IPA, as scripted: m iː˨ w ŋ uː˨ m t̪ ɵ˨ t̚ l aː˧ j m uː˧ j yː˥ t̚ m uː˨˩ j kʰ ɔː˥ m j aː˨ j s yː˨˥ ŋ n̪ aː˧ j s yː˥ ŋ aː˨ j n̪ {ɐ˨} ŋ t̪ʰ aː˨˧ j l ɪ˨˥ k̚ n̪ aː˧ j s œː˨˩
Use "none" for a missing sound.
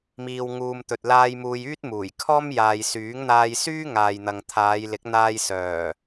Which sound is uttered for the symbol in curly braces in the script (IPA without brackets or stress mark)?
ɐ˨